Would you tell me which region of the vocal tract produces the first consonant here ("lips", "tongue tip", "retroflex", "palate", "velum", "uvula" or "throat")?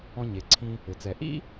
palate